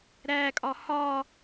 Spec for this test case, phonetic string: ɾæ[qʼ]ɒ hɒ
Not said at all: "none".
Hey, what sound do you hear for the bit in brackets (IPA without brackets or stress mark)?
kʼ